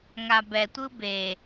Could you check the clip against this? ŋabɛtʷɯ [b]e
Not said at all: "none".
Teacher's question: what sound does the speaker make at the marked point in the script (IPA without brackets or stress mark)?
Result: b